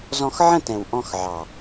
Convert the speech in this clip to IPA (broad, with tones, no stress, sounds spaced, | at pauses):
z ɔ̃˧ x ʕ ə̃˦˨ t ɛ̃˨ w ʔ ɔ̃˧ x ʕ ɑ˨